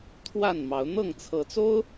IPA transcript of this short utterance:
t̪ʰwa˥˨nmɑ˨˦ʊ̯ n̪ɤ˥˨ŋt͡sʰɤ˨˦t͡so˦ʊ̯

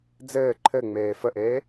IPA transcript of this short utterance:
d͡zɘː ǃʰɘŋ͡meː fəʔeː

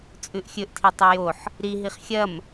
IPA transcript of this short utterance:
t͡sʼʉʔxʲɵʔtʰi tˤejoħ | ɾi ɦiχxʲɐm

